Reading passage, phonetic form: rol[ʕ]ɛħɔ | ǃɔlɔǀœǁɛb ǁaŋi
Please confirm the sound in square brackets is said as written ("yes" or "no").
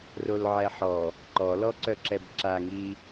yes